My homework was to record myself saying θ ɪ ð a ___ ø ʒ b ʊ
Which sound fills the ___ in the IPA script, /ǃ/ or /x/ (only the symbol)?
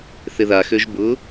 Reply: x